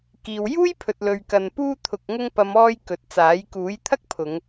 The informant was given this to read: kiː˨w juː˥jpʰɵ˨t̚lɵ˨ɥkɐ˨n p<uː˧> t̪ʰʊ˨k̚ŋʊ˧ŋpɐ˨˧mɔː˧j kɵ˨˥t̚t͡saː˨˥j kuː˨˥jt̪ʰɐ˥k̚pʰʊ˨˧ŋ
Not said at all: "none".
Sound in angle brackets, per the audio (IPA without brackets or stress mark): uː˧